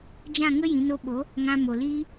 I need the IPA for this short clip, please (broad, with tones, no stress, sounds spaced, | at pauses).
d͡ʒ ã˦˨ ŋ ə˦ j ĩ˨˦ n o˦ ɓ o˨˦ | ŋ ã˧ m o˨ l iː˦